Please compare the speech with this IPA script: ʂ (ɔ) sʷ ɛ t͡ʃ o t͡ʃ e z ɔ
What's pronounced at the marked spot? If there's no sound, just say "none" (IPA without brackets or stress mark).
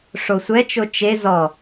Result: o